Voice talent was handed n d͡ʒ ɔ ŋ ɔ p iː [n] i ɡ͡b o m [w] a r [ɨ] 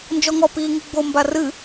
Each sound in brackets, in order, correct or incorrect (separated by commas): incorrect, incorrect, correct